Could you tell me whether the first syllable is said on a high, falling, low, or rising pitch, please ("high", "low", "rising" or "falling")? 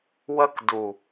high